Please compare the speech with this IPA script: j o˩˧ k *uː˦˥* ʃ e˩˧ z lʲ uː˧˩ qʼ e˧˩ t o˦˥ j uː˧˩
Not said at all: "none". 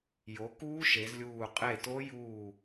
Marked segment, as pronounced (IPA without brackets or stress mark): uː˦˥